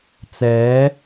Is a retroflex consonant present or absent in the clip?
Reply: absent